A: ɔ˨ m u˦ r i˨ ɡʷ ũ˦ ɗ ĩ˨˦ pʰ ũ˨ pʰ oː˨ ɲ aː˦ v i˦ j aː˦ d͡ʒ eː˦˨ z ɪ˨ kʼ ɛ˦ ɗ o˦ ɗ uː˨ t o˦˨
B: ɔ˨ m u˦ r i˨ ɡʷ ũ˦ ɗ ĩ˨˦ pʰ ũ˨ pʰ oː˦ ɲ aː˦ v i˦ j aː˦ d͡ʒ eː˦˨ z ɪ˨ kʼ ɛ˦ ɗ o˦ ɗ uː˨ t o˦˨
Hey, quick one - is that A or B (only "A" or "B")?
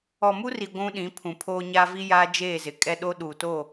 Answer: B